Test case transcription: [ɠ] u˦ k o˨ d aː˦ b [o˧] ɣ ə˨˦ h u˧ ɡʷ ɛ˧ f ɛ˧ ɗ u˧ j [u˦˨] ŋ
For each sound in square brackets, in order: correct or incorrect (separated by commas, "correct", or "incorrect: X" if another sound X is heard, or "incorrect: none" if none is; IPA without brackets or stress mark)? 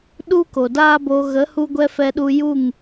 incorrect: ɗ, correct, correct